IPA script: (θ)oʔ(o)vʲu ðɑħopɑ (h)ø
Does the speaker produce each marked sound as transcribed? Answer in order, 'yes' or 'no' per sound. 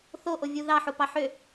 yes, yes, no

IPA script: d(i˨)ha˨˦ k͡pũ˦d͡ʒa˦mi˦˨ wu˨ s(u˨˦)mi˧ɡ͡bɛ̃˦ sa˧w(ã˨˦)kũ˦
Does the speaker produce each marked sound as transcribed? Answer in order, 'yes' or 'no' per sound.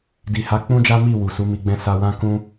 yes, yes, no

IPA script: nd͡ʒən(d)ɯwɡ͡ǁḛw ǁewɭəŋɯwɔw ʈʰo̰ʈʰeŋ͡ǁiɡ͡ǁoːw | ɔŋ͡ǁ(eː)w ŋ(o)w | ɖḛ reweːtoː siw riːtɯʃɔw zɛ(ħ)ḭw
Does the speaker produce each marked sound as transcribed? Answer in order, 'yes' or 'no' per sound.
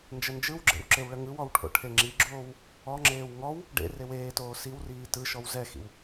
no, yes, no, no

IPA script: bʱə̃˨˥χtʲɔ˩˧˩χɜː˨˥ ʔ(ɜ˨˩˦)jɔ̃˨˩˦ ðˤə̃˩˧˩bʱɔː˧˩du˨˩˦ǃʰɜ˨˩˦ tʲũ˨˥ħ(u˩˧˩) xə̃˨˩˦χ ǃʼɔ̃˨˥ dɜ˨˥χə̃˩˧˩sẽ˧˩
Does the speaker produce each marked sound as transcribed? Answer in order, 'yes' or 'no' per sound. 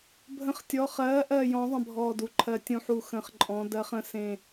no, no

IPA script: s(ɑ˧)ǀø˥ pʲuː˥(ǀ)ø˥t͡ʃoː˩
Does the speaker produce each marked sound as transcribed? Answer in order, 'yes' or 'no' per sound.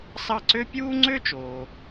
no, no

